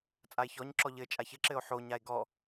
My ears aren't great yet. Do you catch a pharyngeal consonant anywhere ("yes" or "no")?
yes